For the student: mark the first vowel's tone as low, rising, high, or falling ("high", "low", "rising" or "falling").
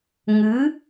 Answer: rising